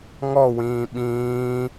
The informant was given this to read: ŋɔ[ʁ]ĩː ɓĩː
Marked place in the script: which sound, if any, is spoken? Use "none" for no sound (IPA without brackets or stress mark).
w